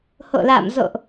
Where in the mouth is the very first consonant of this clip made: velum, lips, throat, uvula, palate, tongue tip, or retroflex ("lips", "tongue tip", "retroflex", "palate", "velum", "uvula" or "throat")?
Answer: throat